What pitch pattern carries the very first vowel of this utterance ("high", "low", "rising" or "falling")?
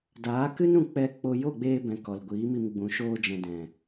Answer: rising